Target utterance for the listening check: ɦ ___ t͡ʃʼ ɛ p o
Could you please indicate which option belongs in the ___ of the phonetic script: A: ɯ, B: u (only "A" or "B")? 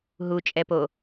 B